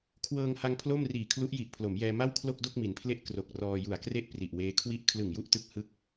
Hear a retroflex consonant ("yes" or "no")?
no